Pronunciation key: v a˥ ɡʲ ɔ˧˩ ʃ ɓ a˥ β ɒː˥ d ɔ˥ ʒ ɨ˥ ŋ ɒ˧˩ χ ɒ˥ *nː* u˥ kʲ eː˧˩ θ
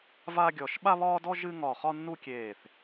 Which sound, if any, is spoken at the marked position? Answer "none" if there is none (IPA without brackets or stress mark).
nː